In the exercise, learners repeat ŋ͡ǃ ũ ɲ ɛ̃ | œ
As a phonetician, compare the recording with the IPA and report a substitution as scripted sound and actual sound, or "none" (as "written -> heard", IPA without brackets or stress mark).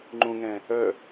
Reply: ɲ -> ŋ